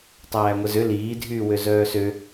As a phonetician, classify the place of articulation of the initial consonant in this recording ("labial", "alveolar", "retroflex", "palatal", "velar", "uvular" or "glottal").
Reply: alveolar